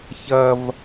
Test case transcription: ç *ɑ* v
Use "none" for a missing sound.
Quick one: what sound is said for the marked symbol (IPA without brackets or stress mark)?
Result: ɐ